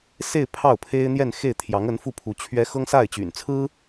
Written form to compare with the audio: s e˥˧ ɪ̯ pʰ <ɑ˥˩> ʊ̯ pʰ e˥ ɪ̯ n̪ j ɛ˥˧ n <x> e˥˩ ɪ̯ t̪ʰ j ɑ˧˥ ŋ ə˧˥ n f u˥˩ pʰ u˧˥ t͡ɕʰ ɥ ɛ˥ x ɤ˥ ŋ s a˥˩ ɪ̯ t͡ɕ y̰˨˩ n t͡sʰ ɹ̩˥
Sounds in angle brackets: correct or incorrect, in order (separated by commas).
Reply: correct, correct